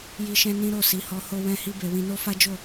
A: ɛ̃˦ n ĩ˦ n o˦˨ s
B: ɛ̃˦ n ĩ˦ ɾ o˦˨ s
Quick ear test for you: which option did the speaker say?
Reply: B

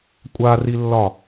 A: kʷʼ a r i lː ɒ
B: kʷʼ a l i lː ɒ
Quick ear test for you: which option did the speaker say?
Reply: A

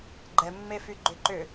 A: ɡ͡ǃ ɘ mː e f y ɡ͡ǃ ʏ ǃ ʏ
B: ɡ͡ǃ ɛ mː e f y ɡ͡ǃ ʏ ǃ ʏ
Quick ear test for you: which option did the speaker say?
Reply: B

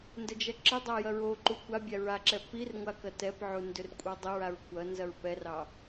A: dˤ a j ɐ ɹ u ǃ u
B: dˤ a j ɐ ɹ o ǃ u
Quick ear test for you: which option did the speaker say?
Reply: B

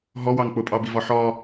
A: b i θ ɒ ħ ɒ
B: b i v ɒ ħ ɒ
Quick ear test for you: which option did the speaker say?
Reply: B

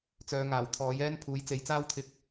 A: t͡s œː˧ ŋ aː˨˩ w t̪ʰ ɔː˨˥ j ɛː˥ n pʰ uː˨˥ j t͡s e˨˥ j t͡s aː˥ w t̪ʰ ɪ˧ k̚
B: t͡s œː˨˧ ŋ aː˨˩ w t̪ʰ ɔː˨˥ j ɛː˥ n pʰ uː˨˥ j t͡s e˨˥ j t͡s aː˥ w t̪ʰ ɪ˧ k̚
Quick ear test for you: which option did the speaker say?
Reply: B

